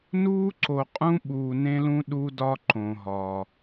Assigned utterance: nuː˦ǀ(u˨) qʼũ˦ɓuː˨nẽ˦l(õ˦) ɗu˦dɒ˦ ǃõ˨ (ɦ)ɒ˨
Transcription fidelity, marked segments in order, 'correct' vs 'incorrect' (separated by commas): incorrect, incorrect, correct